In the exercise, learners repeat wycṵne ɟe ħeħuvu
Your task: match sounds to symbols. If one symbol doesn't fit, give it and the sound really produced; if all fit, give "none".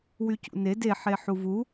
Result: ɟ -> d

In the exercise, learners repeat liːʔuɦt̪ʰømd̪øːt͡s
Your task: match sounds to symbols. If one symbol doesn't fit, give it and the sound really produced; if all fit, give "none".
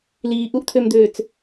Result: ɦ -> ʔ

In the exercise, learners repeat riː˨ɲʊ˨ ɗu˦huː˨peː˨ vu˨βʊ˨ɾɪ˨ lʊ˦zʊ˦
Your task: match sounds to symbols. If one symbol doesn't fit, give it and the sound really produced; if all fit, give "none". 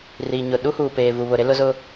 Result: ɪ˨ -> ɪ˦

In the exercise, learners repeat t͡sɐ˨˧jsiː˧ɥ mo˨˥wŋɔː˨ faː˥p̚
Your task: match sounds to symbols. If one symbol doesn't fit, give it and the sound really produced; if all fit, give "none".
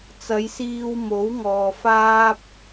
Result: ɥ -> w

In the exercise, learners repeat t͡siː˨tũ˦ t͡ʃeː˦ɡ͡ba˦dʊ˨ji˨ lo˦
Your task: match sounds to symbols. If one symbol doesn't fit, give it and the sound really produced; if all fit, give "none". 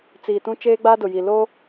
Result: none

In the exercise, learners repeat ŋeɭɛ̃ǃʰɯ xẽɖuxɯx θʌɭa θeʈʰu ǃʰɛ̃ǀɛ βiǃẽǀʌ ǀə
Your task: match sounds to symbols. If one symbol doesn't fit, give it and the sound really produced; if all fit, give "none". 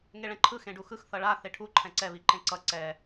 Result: ə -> ɛ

